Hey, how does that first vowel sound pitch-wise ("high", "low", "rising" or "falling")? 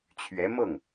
rising